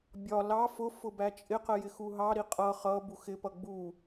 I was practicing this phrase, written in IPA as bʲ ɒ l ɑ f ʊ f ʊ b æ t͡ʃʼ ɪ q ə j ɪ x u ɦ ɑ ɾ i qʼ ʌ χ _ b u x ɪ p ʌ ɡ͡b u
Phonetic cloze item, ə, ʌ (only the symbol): ʌ